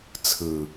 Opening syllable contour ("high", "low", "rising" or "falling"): low